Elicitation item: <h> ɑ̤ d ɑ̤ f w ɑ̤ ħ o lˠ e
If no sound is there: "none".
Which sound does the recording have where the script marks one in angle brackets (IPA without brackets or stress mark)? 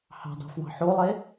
h